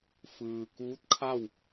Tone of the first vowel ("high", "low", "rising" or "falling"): low